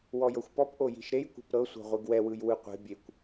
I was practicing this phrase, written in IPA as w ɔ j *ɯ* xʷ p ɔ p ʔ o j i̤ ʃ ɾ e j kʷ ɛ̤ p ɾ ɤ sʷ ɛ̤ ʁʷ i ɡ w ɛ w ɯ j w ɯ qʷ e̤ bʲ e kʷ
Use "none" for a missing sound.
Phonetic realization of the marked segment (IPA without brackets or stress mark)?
ɤ